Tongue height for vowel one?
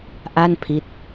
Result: low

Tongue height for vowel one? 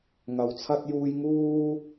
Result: low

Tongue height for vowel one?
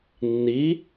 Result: high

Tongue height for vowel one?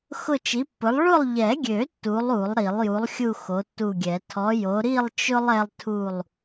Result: high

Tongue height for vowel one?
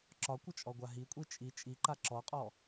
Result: low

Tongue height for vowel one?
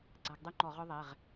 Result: low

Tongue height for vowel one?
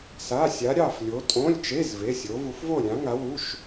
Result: low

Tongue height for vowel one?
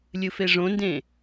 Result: high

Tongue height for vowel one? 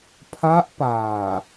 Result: low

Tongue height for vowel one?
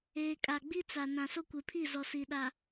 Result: mid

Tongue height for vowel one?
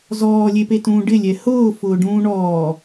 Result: mid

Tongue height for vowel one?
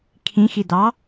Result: high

